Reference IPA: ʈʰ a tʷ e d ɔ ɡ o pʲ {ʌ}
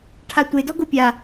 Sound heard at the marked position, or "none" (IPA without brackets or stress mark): a